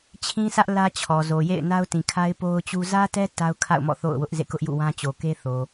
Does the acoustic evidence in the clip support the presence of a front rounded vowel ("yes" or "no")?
no